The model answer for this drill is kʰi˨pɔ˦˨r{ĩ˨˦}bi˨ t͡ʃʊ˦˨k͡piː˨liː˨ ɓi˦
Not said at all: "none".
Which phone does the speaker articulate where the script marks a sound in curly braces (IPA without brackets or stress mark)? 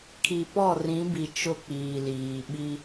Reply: ĩ˨˦